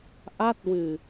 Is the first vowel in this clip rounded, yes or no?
no